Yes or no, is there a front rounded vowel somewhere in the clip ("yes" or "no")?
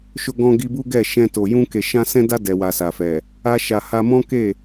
no